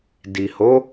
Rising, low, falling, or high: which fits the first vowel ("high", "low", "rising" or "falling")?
low